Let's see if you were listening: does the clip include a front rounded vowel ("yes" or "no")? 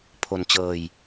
no